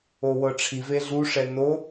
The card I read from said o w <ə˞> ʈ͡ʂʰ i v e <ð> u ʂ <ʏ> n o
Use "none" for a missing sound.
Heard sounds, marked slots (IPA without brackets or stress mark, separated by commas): ɤ, ɮ, ɛ